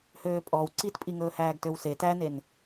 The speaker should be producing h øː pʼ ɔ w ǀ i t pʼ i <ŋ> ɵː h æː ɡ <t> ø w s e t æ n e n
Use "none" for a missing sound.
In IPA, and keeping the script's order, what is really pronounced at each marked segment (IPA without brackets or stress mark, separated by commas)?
ŋ, t